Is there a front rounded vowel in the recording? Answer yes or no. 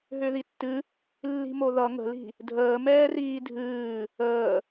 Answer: yes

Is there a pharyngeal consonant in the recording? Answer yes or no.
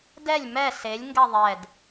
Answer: no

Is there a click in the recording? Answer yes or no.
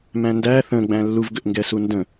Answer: no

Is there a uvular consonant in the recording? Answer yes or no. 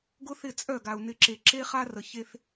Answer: yes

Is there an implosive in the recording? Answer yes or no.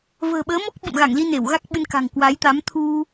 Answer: yes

